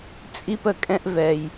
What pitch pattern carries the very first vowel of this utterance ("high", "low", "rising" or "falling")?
high